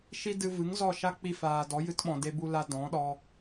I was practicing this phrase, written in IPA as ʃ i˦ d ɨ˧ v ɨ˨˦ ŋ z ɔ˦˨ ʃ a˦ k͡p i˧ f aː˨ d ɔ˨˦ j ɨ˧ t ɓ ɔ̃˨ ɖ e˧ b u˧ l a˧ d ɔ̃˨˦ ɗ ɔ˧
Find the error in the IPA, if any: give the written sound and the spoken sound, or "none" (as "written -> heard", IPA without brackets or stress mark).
ɖ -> d